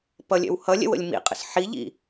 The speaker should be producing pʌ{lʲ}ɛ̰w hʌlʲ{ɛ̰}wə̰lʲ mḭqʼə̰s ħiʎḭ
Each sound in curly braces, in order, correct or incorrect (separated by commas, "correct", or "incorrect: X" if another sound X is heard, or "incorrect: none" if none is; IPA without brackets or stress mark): correct, correct